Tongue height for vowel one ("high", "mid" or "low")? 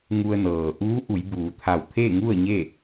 high